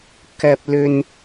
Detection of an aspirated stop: absent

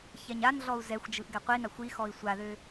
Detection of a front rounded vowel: present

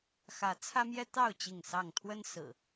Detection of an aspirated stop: present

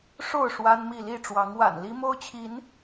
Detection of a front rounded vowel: absent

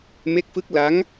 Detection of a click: absent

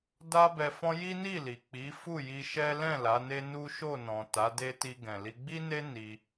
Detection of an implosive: absent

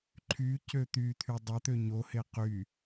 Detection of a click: present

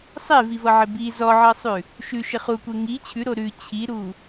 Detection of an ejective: absent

